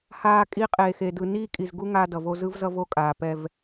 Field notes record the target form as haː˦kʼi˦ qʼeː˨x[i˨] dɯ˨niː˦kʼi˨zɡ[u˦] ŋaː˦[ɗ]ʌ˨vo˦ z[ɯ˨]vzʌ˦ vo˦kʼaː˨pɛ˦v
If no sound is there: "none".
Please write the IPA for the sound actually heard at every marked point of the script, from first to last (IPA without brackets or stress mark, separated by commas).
e˨, u˦, d, ɯ˦